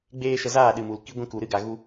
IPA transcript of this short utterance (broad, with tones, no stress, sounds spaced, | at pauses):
ɡ͡b eː˧ ʃ ə˧ z aː˦˨ ɗ ɨ˨ m u˨ l k i˧ ɡʷ ĩ˦ k u˨ ɾ ɨ˦ ɡ a˨ ɣ u˧